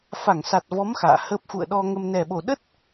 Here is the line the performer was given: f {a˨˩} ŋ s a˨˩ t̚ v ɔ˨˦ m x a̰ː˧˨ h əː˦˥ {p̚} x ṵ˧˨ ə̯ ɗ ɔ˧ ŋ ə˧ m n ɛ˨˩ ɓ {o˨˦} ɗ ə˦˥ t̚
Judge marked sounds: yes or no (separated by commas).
no, yes, no